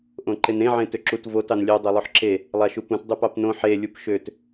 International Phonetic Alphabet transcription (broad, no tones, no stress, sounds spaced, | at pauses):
ʔ õ ǃ e n ẽ ʕ ẽ t ø ǁ u t v o t ɑ n lʲ ø dˤ ø lˠ o ħ ǁ e | lˠ a ʃ u p ũ t dˤ ø p ɑ p n õ ħ e lʲ u p ʃ ø t